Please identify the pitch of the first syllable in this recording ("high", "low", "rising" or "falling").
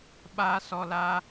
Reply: high